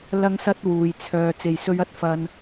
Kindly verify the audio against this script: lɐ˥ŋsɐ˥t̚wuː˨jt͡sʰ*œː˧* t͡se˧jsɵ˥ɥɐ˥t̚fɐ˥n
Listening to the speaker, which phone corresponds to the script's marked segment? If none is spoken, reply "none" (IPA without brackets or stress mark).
œː˧